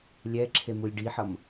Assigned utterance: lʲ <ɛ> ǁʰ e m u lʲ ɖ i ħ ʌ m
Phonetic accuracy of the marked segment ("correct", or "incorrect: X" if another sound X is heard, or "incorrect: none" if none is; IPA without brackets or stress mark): correct